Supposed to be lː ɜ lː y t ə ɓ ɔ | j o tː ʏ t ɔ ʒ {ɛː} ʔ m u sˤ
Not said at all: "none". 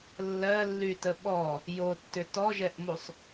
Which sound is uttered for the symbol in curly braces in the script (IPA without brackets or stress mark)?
ɛ